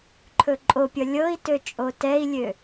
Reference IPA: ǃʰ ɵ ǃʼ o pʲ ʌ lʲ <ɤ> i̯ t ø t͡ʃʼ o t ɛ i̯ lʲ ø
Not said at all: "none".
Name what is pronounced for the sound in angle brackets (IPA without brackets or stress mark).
ɤ